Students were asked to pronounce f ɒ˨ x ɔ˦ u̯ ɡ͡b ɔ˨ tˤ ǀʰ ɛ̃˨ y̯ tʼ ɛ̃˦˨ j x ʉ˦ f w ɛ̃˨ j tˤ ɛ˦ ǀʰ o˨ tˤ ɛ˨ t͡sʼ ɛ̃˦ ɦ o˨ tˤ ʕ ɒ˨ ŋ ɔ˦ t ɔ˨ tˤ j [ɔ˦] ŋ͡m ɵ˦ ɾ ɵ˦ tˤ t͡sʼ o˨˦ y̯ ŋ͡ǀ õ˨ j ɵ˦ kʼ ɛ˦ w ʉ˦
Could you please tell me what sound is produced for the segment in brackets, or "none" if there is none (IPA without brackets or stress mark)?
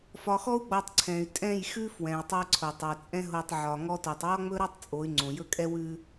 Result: ɔ˦